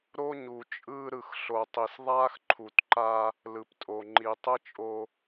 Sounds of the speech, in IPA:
ɾ o˦ ɲ u˨ t͡ʃʼ ɯː˦ ɾ ɯ˨ x ɬ o˨ tˤ i˨ s ðˤ aː˦ x ǃʰ u˨ t ǃ a˦ | l ɯ˨ p tʼ o˨ ŋ͡ǃ i˨ tˤ ɯ˦ t͡ʃʼ o˦

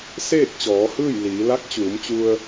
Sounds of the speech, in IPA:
s eː˥˨ k̚ t͡ɕ ɔː˩˧ h ɯː˥˨ j l iː˩˧ l a˧˥ k̚ t͡ɕ uː˩˧ m t͡ɕ u˧ ə̯

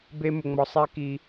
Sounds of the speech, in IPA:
b e˧ m ʊ˨ ŋ͡m ɔ˨ sˤ ɛ˦ k i˧

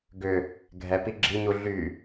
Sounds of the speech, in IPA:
ɡ ʏ | ɡʱ ɛ p i ɡ͡ǁ i ɲ u ɮ y

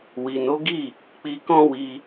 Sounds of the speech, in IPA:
w i˨ n o˨˦ ɡ i˦˨ | k͡p i˧ k ɔ̃˦ w i˧

